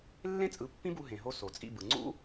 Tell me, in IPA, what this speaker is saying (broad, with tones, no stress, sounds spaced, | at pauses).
lː ẽ˥ t͡sʼ ɯ˩˥ pː ĩ˥ b u˧ ɦ ẽ˩ ɦ o˧ s o˩ t͡sʼ ḭ˥˩ b ɯ˩ ŋ͡ǀ ṵ˥